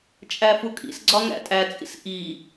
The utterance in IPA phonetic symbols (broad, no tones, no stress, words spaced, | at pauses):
t͡ʃʼæfukʼḭsɡ͡ǀɒ ŋæ̰tʼæt͡sʼḭs ʔi